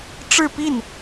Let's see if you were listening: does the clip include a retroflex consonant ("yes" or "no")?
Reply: yes